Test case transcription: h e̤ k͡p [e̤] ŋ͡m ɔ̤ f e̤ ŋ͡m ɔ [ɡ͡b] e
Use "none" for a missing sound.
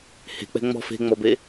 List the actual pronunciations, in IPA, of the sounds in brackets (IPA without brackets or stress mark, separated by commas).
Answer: ɛ̤, b